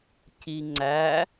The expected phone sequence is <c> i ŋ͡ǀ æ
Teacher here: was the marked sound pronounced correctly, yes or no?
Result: yes